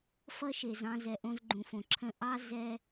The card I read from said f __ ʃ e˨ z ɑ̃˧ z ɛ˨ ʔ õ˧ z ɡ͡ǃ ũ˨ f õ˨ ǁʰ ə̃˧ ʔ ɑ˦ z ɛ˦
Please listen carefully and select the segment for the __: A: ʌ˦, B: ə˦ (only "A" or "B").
A